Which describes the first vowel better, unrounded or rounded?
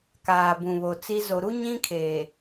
unrounded